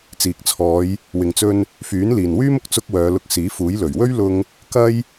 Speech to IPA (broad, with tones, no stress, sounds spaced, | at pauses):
t͡s iː˨ k̚ t͡sʰ ɔː˨˧ j | w ɪ˨ ŋ t͡s ɵ˧ n | f yː˨˥ n l iː˨ n w yː˥ m ʊ˨˥ k̚ t͡s ʊ˥ k̚ w œː˨˧ l ʊ˧ k̚ s iː˨˥ f uː˨˥ j l ɵ˨˩ ɥ w ɵ˥ ɥ l ʊ˧ ŋ | k ɐ˥ j